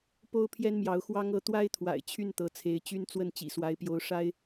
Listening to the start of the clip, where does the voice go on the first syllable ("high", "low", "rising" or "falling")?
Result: high